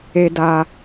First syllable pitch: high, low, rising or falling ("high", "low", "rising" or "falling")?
low